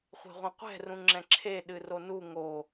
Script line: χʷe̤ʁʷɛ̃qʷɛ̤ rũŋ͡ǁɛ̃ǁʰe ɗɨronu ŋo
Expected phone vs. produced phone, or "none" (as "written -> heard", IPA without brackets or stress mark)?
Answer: none